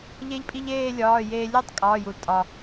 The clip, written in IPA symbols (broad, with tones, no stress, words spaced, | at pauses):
ʎe˧ʎpʼi˧ʎ eː˥˧lʲɒː˩˧˩jeː˧ lʲo˥˧tˤ kʼɒː˩˧˩ju˩l tʼɒ˩